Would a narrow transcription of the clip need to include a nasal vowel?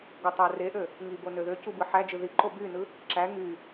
no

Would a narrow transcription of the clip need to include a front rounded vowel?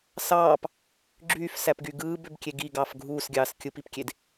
yes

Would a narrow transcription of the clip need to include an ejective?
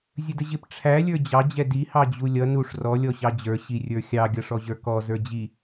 no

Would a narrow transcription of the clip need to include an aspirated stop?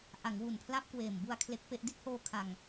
yes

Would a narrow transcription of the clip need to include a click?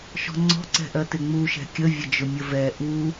yes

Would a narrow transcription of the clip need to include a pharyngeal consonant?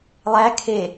no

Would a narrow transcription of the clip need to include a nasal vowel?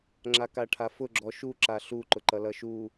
no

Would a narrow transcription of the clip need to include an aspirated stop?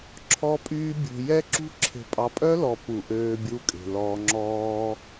yes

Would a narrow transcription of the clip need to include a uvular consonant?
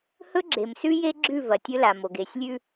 no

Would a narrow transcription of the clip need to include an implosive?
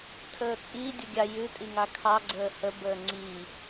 no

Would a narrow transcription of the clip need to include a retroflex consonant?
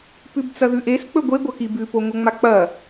no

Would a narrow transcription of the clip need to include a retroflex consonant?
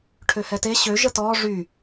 yes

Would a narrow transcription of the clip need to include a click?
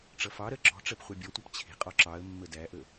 yes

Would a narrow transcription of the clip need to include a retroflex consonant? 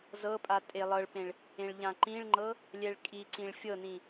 yes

